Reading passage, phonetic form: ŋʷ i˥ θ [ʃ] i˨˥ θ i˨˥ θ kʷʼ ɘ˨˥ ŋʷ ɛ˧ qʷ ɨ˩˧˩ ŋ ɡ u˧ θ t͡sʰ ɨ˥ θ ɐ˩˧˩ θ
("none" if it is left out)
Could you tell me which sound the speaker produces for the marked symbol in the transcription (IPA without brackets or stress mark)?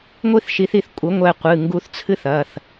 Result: ʃ